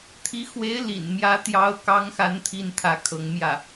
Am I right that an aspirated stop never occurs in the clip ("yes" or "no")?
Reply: no